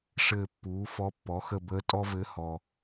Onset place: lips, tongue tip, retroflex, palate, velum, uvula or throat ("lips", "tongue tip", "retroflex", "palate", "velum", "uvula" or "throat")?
retroflex